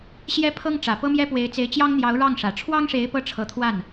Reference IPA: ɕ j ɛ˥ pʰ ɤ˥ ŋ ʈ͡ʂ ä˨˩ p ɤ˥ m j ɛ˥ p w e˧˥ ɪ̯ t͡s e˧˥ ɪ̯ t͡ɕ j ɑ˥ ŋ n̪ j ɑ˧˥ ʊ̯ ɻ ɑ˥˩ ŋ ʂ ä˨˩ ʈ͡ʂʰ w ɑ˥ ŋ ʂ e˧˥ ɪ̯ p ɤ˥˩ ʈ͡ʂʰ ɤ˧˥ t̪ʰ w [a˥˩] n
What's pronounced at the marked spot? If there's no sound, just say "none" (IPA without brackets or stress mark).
a˥˩